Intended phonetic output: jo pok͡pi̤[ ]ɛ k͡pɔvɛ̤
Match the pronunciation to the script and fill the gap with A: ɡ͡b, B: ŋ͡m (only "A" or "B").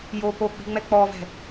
B